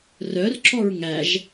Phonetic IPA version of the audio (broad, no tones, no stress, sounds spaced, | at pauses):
r œ r ǁ ɔ ɹ ŋ æ ʒ